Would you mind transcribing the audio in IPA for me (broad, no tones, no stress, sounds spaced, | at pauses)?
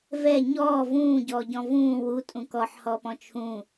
v ɛ ɲ ɔː v ũː ɟ ɔː ɟ ɔ̃ v ũː w u tʼ ũ k ɔ ħ h ɔː p ɔ̃ t͡ʃʰ ũ